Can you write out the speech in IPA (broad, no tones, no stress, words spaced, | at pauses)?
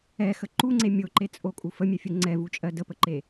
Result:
ɛxə ǃuŋ͡ǀe mʲoǃet͡sʼokʼu fəmʲɛfʲu ŋ͡ǀɛvut͡ʃʼɜ dəpəǃe